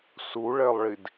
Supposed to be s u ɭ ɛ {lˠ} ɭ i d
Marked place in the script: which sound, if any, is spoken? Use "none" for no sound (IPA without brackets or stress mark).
lˠ